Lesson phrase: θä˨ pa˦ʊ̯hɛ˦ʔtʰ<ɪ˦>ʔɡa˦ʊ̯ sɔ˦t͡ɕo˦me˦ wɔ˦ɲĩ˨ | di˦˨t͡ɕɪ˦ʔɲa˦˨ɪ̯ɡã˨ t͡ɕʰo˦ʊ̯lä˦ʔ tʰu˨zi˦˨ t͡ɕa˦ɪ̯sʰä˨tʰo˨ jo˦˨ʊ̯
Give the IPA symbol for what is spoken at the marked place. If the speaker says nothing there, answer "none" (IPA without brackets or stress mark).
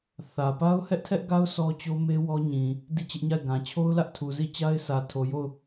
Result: ɛ˦